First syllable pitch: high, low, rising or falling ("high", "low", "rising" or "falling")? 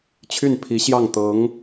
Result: falling